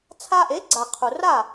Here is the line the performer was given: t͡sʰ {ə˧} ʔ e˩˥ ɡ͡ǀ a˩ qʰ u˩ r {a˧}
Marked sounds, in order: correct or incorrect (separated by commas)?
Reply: incorrect, incorrect